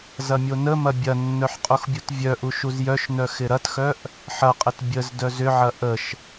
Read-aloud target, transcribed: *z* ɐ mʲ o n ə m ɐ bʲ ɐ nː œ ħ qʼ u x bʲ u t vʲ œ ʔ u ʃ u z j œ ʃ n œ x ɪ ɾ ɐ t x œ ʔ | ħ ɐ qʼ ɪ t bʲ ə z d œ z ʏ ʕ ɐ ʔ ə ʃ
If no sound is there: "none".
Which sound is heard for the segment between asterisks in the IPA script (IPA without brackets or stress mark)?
z